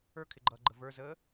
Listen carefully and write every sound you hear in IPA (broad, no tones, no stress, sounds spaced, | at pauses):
ə˞ kʰ ɪ ɡ͡ǃ ʌː ɡ͡ǃ ə v ə˞ z əː